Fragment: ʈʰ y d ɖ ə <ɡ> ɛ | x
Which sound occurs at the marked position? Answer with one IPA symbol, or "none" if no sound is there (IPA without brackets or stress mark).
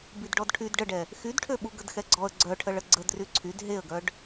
ɖ